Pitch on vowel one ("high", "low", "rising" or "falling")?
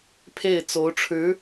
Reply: falling